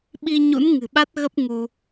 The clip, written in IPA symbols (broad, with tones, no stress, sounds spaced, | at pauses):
ɓ i˧ ɲ ṵ˧˥ n ŋ ɨ̤˨˩ ɓ a˦˥ t̚ ɣ ə˦˥ p̚ ŋ u˧